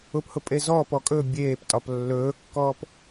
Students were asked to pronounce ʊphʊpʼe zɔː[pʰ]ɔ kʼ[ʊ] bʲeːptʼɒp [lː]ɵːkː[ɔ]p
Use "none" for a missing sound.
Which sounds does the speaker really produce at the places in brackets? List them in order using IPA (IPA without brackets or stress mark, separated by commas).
p, ɵ, lː, ɔː